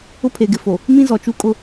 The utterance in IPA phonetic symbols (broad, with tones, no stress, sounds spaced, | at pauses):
ʊ˦ pʰ e˨ ɡ ɪ˨ f o˨ | m ĩ˦ z ɔ˨ t͡ʃ u˦ kʼ ʊ˦